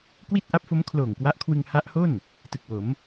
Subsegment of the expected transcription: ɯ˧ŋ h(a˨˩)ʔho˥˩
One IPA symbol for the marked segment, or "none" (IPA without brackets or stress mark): a˦˥